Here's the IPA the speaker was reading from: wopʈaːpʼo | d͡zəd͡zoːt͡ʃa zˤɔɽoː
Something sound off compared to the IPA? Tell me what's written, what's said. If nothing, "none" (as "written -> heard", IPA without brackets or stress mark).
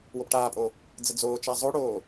ɔ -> o